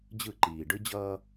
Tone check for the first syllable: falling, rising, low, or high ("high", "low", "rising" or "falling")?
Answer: falling